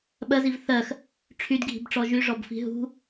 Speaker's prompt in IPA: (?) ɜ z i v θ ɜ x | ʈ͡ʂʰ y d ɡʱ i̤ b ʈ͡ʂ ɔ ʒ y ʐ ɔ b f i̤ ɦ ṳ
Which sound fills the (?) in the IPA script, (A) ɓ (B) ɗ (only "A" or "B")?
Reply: A